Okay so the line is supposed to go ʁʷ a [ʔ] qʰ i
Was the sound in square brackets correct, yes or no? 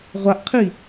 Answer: yes